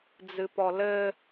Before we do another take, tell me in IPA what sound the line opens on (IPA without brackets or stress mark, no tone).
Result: d͡z